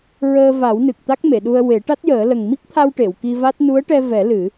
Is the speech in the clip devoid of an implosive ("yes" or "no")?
no